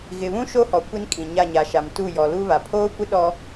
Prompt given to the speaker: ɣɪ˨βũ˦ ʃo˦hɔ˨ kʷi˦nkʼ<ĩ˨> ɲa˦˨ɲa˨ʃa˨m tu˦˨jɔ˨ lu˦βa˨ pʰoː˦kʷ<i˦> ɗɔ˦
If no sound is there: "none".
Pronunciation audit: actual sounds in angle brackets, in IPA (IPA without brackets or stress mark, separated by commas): ĩ˨, ɪ˦